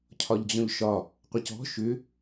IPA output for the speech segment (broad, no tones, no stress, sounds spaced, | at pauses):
cʰ ɒ ʎ d͡ʑ ɔ̃ ʎ ʃ ɒ | qʷ ə c ɔ̤ ʃ ʏ